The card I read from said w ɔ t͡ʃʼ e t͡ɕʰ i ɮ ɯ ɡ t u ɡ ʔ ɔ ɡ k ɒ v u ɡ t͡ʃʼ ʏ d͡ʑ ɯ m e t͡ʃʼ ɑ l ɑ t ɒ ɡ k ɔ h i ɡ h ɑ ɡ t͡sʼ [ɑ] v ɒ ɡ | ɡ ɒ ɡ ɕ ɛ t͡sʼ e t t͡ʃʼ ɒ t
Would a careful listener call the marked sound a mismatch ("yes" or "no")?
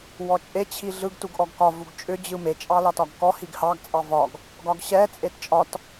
no